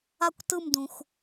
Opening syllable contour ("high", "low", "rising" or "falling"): falling